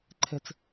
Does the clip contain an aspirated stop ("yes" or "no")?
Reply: yes